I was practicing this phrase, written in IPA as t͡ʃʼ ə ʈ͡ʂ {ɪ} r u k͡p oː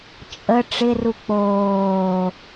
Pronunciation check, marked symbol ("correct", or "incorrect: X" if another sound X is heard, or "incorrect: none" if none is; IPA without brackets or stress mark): correct